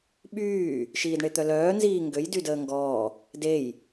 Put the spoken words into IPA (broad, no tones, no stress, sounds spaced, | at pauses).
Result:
ɓ yː | ʃ iː d ɳ e t̪ œ l œː n z iː ŋ ɡ ø j d y d əː ŋ ɡ ɔː | d e j